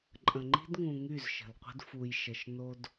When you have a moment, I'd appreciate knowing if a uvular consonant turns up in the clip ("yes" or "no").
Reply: yes